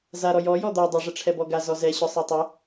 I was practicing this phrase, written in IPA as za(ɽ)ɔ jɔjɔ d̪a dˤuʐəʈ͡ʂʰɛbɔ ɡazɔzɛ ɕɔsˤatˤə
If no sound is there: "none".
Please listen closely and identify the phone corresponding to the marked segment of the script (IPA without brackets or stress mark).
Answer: ɾ